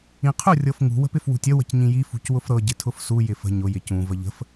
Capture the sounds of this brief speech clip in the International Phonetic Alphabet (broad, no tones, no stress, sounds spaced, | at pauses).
ĩ qʰ ʊ rʲ ɤ f ŋ ṳ w ə̤ p ɪ f w ṳ tʲ ə w ə̤ c ɲ ĩ j i f ṳ c w ʊ f ɾ ɤ ɟ ɪ tʰ ʊ f s u j ɪ f ə̤ ɲ ʊ j ɪ c ũ v ə ʎ ə̤ f